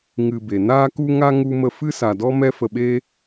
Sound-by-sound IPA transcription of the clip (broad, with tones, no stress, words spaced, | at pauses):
ŋɨ˧be˨ naː˦ku˦ŋa˦ ŋu˦ mə˧fɨ˦sa˨dɔ˦ mɛ˦fə˧ɓeː˦